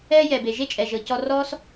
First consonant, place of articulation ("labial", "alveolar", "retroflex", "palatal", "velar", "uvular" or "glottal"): palatal